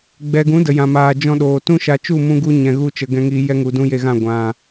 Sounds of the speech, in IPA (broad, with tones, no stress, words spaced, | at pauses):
ɡ͡bɛ˨ɡũ˨˦ də˨jã˨maː˨ d͡ʒɔ̃˧ɗoː˨tũ˦ʃa˧ t͡ʃu˦˨mũ˧ɡu˧ ɲɛ̃˧ɣu˦t͡ʃə˧ ɡɛ̃˧ŋiː˧jɛ˦ŋu˨ dũ˦je˧ɣã˦˨ ɡʷã˨